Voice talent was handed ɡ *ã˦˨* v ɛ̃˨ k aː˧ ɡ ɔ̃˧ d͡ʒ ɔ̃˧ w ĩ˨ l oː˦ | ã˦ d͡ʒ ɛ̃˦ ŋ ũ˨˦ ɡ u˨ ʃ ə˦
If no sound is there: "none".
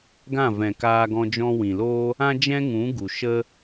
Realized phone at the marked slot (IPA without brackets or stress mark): ã˦˨